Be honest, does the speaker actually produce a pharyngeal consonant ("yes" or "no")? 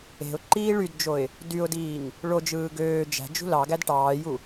no